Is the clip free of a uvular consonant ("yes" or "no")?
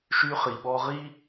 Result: no